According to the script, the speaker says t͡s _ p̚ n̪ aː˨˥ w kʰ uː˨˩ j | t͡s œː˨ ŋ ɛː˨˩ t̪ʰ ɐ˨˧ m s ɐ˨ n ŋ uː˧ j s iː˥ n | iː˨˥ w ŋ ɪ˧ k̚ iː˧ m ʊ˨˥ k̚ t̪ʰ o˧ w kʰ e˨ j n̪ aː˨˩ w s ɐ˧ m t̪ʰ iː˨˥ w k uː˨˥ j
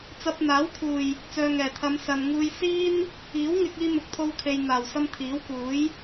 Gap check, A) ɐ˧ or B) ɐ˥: A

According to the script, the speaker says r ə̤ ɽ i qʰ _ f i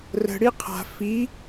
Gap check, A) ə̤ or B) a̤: B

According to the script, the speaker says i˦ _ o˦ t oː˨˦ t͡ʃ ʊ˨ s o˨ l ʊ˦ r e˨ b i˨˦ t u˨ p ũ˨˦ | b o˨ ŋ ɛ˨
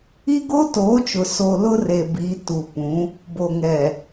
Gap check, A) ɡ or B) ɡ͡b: A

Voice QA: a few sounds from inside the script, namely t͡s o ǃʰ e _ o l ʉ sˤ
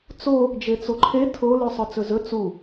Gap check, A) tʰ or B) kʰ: A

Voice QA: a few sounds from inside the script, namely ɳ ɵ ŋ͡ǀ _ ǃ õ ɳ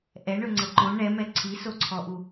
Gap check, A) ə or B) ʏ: A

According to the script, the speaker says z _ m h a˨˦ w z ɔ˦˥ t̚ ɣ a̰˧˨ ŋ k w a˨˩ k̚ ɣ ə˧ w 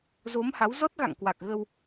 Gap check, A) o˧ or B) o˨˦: B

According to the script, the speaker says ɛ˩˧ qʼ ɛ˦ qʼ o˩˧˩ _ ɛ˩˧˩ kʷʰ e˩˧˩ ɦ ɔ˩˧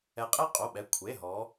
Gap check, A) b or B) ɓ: B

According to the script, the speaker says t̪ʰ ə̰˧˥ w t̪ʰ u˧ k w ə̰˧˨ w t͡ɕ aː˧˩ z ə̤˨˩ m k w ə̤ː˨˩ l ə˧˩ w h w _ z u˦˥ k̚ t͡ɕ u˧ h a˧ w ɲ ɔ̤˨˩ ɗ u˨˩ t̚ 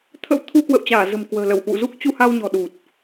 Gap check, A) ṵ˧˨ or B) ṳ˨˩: A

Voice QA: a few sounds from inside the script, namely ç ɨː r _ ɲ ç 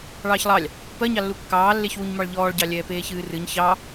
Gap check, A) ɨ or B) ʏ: A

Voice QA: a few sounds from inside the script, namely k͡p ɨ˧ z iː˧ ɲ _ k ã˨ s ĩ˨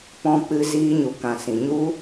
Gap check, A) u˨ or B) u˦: A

